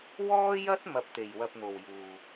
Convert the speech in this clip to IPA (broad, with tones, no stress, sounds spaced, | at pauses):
w ɔː˥ j ɐ˥ t̚ m ɐ˧ p̚ t̪ e˨ j w ɐ˧ p̚ n̪ o˨ w j uː˨